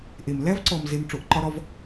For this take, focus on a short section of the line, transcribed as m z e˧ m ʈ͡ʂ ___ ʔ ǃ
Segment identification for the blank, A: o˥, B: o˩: B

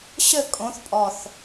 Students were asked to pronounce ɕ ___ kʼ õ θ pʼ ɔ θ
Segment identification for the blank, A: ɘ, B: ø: A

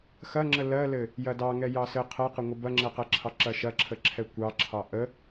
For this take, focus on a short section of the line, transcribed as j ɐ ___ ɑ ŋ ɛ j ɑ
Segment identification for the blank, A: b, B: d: B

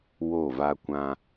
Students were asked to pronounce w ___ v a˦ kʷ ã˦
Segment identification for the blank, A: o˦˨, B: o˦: A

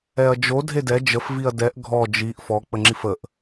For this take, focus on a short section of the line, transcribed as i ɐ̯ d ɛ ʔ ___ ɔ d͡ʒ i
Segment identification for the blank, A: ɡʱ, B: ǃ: A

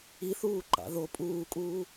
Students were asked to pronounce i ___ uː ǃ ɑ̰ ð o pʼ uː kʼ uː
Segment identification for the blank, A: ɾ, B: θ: B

